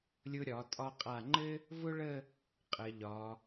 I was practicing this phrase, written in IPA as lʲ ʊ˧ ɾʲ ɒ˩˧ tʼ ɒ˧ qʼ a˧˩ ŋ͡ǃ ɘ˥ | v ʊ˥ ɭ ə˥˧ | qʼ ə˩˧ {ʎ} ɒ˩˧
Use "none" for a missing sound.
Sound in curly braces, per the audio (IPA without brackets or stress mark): ʎ